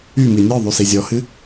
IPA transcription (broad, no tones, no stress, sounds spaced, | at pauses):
y m i nʲ ɔ ðˤ y s i zʲ ɔ h ɨ